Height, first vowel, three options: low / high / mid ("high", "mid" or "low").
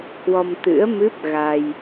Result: mid